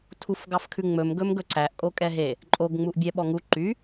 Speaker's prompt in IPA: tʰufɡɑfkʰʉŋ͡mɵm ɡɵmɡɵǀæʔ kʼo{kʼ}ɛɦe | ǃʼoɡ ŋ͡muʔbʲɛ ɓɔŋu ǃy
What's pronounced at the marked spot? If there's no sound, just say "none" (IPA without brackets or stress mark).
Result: kʼ